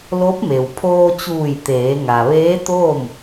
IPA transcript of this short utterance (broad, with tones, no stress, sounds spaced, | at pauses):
l o˧˥ p̚ m e˩ w pʰ oː˧ t͡ɕ uː˧˩ j t̪ eː˩˧ ŋ a˩ ʋ eː˧˥ t̪ oː˥˨ m